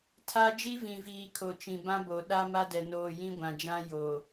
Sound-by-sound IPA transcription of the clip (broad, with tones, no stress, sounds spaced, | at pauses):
tʰ a˦ d͡ʒ i˦ v ĩ˨ v iː˨ kʰ o˨ t͡ʃ ĩ˨ b ã˦ b o˨ ɗ a˦ m a˦ d ɛ˨ n oː˨ j ĩ˦ ɡʷ ã˨ d͡ʒ ã˦ j o˨